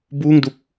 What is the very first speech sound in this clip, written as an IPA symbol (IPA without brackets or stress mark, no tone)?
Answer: b